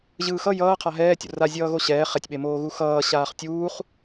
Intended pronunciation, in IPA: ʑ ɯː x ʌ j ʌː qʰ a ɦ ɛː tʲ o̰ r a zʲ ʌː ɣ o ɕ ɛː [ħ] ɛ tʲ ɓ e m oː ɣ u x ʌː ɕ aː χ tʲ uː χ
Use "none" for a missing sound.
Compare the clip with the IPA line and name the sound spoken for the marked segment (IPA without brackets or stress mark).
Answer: χ